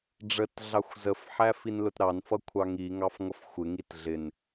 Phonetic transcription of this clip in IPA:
ɖ͡ʐətɮɑxʷ zəfħæ finlʊtɾɑnfʌ kʷʰɑŋiŋɑf ŋʌfxʷɪŋit ɮɪn

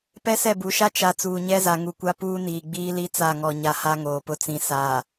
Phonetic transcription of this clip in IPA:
pɛ˦sɛ˦˨bu˨ʃa˦ t͡ʃa˨ t͡suː˨ɲɛ˦za˨ ŋu˨kʷa˦puː˦ niː˨ɡ͡biː˦li˦ t͡sa˦˨ŋɔ˨ɲa˨ha˦ ŋoː˨pʊ˦ t͡sĩ˨ sa˨

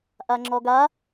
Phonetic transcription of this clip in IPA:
ʔaŋ͡ǁɔɡa

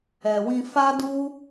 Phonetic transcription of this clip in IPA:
ɛ˨wĩ˧ fa˦du˦

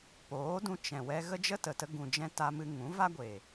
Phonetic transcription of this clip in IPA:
poː˨˦dũ˧ t͡ʃɛ̃˨wɛ˧ ɣə˦d͡ʒə˦tə˨tə˧ ɡũ˨d͡ʒɛ̃˧ ta˧mɨ˧ ŋũ˨˦va˦ɡʷe˨

